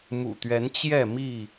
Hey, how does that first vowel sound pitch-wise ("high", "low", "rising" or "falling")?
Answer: low